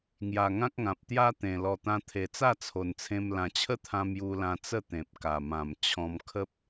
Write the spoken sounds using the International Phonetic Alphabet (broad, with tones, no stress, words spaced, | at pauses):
ŋja˨˩ŋã˦k̚ŋã˨p̚ t̪ja˦t̪ẽ˨˩ lɔ˨˩t̪ã˧ t̪ʰe˨˩t͡sa˥˧t͡sʰo˨˩nt͡sʰẽ˧m lã˨˩t͡ɕʰə˦t̪ʰã˧ mju˧lã˧t͡sə˥˧ t̪ẽ˨p̚ka˨˩mã˨˩m t͡ɕʰɔ̃˧mkʰə˦p̚